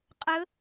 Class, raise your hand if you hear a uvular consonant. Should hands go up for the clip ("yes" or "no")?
yes